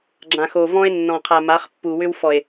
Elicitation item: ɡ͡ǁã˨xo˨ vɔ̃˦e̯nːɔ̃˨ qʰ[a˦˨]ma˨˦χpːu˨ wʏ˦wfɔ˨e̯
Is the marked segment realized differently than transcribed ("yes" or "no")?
yes